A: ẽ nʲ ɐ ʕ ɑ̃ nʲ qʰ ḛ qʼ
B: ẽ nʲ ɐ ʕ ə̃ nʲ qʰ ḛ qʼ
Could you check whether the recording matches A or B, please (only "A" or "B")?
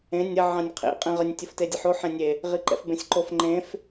A